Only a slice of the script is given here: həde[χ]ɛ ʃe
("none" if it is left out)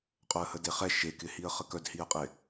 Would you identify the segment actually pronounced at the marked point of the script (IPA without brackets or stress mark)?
χ